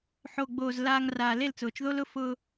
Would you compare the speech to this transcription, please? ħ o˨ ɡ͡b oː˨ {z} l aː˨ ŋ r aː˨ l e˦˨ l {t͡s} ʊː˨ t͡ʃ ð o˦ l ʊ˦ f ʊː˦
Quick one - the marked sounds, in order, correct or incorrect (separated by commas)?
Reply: correct, correct